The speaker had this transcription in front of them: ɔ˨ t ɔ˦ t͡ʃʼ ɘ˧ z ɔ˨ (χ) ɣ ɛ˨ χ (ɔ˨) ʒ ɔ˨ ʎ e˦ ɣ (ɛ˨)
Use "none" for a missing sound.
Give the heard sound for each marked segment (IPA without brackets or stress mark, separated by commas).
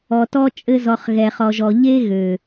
χ, ɔ˨, ø˨